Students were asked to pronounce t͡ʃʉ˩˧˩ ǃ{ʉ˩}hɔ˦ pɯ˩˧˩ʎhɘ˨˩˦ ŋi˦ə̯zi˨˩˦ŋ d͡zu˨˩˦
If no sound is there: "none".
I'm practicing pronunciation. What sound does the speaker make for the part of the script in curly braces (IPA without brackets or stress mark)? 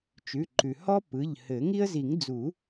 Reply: ʉ˩